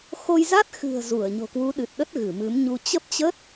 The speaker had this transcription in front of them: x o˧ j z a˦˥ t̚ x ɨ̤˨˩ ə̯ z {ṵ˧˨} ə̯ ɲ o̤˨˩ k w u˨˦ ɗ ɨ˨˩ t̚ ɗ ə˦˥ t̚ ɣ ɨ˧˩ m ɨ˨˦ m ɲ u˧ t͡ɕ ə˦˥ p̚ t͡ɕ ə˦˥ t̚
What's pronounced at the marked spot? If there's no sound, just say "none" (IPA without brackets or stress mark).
u˧˩